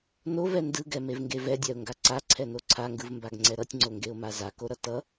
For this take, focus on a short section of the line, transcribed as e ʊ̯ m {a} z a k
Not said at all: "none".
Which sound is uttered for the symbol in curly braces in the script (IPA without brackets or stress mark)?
a